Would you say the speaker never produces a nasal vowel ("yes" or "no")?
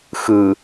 yes